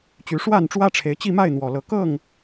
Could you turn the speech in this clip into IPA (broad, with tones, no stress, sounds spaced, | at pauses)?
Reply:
t͡ɕ y˨˦ ʂ w a˥˨ n ʈ͡ʂ w ä˦ ʈ͡ʂʰ e˨˦ ɪ̯ t͡ɕ i˥˨ m a˥˨ ɪ̯ n̪ w ɔ˨˩ l ɤ˨˦ k ɤ˥˨ ŋ